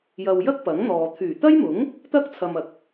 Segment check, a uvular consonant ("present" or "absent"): absent